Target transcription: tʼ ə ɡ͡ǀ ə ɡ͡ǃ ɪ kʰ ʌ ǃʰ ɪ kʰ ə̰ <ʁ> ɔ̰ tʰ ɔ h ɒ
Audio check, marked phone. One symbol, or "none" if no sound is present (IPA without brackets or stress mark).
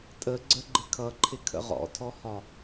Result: ʁ